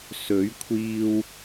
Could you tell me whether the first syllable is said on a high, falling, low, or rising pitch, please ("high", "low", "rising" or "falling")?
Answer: rising